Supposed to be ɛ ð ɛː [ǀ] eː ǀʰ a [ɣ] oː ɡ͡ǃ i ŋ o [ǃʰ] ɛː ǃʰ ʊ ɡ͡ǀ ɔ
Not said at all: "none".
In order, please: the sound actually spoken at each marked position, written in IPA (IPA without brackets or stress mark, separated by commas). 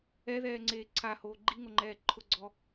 ŋ͡ǀ, h, ŋ͡ǃ